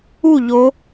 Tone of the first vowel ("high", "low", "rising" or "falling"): falling